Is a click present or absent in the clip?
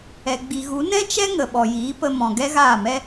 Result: absent